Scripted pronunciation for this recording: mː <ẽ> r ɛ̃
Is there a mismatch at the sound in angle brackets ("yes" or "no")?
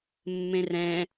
no